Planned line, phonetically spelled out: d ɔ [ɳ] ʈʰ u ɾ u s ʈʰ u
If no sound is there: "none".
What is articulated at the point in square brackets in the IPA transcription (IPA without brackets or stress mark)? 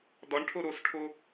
ɳ